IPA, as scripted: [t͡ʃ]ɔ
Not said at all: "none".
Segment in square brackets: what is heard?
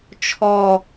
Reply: t͡ʃʰ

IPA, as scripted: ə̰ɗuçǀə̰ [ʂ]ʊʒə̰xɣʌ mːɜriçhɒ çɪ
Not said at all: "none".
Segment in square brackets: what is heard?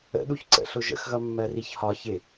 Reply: ɬ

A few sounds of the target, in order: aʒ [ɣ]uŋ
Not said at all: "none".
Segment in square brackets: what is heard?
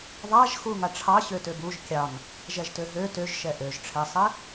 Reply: x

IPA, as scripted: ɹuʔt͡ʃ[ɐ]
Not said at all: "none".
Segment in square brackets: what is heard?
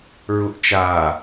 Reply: a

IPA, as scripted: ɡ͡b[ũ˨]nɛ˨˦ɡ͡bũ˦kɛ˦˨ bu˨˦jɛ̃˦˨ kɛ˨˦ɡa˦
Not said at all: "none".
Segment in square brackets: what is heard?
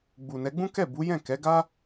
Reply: u˨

